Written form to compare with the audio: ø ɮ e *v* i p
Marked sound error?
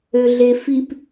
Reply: yes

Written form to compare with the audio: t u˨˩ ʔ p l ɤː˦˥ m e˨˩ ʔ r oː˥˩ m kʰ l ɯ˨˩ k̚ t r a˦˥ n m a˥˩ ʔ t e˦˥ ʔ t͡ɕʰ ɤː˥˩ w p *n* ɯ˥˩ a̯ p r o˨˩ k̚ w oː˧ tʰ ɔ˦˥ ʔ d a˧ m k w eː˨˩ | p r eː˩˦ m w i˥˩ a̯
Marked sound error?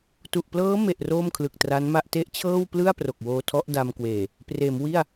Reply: yes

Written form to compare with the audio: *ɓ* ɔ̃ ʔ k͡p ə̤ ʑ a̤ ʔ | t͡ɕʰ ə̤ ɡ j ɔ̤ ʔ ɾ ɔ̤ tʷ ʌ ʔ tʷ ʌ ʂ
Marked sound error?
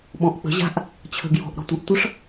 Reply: no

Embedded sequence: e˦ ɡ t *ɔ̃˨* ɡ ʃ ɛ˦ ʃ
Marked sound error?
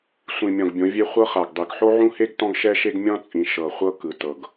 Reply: yes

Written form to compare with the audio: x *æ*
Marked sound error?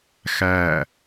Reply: no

